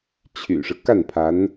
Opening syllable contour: low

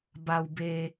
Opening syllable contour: low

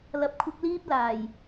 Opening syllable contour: low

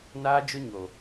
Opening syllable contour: high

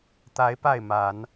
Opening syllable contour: rising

